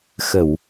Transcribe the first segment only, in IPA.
x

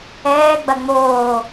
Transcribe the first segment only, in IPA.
ɛː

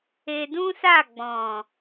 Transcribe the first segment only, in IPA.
e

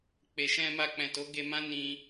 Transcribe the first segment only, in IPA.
k͡p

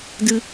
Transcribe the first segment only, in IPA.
d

